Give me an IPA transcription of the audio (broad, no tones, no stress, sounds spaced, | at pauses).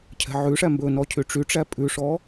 cʰ ɛ̤ ʕ ʉ ʂ æ m b ɵ n ɔ cʰ y ʈ͡ʂ y ʈ͡ʂ æ pʼ ʉ ʂ ɔ